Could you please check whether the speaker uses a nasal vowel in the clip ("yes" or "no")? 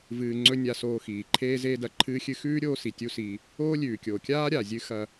no